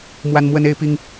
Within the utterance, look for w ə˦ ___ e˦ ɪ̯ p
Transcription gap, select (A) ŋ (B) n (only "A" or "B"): B